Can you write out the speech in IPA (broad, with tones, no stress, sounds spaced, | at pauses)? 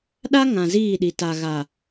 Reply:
ɗ a˦ ŋ ã˨ z iː˦˨ ɗ i˨ t a˨ ɣ a˨